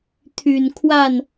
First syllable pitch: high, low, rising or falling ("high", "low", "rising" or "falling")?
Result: low